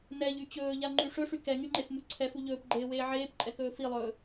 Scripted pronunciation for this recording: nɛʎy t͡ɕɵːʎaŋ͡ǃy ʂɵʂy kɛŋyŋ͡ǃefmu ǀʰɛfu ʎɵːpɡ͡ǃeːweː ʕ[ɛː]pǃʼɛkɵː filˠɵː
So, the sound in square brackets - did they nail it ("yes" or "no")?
no